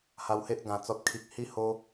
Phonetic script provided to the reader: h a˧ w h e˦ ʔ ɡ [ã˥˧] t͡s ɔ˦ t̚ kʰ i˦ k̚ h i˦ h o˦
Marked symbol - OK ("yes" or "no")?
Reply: no